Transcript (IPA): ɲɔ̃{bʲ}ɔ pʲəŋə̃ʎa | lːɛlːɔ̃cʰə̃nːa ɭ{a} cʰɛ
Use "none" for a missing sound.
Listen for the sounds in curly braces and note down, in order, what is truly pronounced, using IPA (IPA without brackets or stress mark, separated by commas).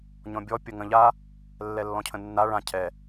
bʲ, ã